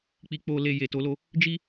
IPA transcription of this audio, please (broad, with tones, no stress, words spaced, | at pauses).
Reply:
k͡pi˨k͡po˨le˨ je˨to˨˦lo˦ | d͡ʒi˦